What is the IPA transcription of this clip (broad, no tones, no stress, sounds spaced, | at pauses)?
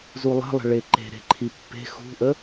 z u lˠ ə̤ lˠ ə̤ ɭ e ǃ e̤ ɾ e̤ ǃʰ i pː e̤ x ṳ ʔ ə